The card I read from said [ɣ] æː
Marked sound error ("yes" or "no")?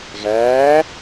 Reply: no